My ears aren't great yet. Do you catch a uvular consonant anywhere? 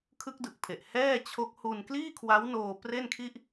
no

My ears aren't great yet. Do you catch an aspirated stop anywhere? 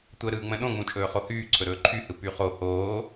yes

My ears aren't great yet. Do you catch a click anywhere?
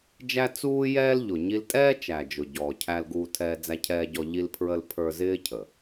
no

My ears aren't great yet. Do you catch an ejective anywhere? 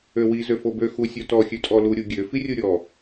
yes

